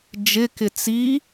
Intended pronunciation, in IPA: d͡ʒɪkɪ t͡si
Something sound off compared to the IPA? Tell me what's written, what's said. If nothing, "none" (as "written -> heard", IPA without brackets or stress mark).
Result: none